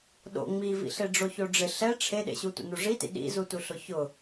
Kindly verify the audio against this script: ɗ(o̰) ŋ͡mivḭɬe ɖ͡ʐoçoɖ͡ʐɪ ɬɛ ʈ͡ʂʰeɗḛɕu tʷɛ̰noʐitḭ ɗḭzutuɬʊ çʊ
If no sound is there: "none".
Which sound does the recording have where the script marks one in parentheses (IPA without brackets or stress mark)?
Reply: o̰